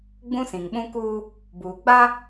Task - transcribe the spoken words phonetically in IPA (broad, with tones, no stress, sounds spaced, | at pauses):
ɡ͡b ũ˦ s ĩ˨ ŋ ɓ ũ˦ k uː˦ | b uː˨ ɡ͡b a˦